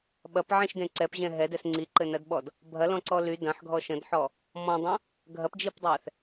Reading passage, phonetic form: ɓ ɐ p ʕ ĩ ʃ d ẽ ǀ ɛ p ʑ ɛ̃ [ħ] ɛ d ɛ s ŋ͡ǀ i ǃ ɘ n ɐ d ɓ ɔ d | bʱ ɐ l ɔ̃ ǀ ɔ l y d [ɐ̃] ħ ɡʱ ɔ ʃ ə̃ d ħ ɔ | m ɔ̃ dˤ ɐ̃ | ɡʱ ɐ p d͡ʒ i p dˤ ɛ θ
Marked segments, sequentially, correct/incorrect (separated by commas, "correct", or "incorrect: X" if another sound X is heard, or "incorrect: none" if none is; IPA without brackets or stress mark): incorrect: ɦ, correct